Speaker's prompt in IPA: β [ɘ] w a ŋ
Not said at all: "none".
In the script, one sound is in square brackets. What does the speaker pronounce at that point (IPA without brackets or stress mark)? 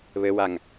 ɘ